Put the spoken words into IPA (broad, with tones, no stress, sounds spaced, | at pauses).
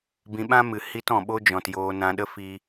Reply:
b ĩ˧ ɓ ã˦ m ɨ˨ h i˦ t ɔ̃˨ ɓ o˦ d͡ʒ ɔ̃˨ t j oː˧ n ã˧ ɗ ə˦ f i˦